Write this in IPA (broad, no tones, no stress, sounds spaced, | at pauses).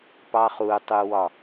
p ɑ χ u tˤ u w ɒ